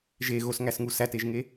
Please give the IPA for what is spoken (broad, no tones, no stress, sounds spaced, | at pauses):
ʒ e ɣ o s ŋ æ s ŋ u s æ t e ʒ ŋ e